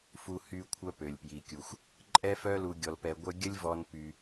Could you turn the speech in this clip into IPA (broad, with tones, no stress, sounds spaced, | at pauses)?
f u˧ h y˧ kʷʰ œ˧ p ø˩ lʲ p j i˩ kʲ u˩ xʷ | ǃʼ ɛ˥ f œ˥ l u˧ ɡʲ ɔ˧ l p ɛ˧ ɡʷ œ˥ ɡʲ ə˥ lʲ v ɔ˧ n p y˧